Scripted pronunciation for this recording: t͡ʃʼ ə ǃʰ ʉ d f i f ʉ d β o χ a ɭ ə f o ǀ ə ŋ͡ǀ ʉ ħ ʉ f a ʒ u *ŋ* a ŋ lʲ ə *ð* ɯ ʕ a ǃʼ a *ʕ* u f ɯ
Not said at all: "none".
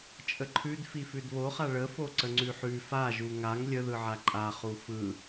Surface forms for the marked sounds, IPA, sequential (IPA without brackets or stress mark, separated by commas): ŋ, ð, χ